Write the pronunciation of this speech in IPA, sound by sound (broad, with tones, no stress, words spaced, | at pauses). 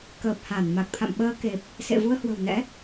kəː˨˩p̚ha˧˩n ma˨˩k̚t̪ʰa̰˧˨mɓəː˧ke˨˩p̚ | sḛ˧˨vu˧ə̯hwə̤˨˩wnɛ̰˧˥